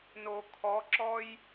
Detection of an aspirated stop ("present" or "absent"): present